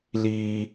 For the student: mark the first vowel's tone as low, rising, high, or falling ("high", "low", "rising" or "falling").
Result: high